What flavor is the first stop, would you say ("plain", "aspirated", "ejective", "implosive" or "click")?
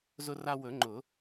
click